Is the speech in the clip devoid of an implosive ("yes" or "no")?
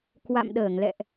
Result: no